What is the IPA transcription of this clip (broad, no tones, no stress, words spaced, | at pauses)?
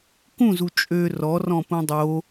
kũzu t͡ʃʼø rɔrɔ̃ pũdˤo